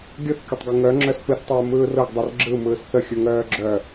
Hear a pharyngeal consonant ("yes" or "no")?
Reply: no